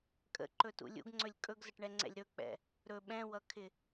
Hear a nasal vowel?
yes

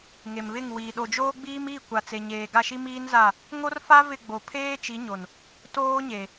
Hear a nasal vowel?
no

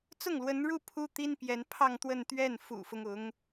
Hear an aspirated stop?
yes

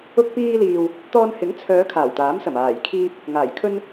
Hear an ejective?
no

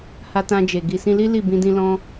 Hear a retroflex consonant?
no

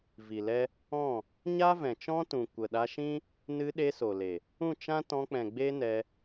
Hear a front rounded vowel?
no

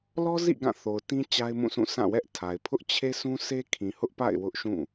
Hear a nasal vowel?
yes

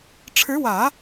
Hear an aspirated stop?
yes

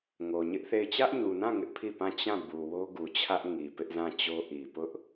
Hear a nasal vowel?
yes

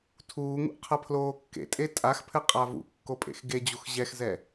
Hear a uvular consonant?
yes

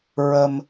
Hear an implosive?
no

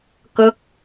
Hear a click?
no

